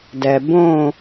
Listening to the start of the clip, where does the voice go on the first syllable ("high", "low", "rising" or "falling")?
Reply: low